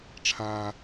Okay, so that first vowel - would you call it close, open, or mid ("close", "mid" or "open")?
open